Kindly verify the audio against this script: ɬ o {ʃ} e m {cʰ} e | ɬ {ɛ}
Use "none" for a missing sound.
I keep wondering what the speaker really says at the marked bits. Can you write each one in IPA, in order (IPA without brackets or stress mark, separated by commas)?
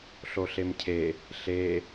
ɬ, cʰ, e